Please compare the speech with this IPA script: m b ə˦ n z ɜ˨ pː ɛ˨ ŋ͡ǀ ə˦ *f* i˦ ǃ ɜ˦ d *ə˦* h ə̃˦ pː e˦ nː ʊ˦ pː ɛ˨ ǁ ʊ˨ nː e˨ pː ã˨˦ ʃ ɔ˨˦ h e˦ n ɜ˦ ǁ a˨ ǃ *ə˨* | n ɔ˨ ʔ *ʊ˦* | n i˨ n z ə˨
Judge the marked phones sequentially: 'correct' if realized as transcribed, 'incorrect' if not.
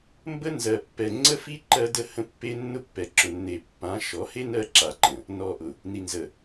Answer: correct, correct, incorrect, incorrect

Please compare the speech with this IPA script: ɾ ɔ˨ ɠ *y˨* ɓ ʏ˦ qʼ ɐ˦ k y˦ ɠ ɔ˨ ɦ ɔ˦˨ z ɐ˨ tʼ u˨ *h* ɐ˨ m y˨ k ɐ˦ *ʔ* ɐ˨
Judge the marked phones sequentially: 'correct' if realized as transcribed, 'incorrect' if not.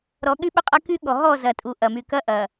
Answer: incorrect, incorrect, correct

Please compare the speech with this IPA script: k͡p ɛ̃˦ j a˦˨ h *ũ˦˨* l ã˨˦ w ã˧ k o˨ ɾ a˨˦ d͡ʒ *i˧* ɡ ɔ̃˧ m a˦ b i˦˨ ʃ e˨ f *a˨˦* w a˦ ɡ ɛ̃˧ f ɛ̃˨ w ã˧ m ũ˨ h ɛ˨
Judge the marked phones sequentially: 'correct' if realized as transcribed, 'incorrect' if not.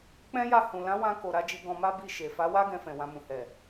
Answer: incorrect, correct, correct

